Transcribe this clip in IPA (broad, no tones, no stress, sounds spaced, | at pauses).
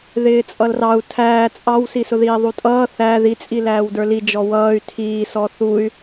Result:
ð ɪː t͡sʼ ʌ l r ɑ u̯ tʰ æː t͡sʼ ɑ w s i s ʊ ð iː ðˤ u tʼ ʌː θ æ ð i t͡sʼ i l æː w d ə˞ l i d͡ʒ ɔ w ʌː y̯ tʰ iː s ɔ θ u y̯